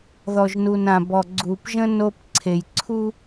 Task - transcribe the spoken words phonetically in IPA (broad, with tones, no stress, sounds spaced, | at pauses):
ð ɔ˨ ʒ n u˨ n ã˨ b ɔ˨ ɡ͡ǀ u˨ p ʒ ə̃˦ n o˦ p ǀʰ e˨ j ǀʰ u˦